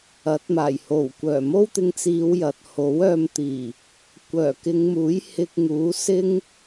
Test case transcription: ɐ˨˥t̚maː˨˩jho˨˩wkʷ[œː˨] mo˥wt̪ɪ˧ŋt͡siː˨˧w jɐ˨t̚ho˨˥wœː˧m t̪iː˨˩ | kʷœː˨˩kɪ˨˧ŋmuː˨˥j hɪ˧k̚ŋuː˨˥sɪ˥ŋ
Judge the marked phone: incorrect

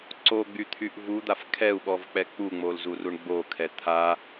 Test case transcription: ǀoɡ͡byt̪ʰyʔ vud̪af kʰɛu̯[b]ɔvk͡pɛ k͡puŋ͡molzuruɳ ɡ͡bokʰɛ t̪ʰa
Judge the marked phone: incorrect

